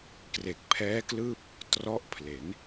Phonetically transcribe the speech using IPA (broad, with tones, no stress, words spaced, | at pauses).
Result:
kre˨˩k̚pʰɛː˦˥klɯː˥˩p̚ | trɔ˦˥ʔpʰle˩˦n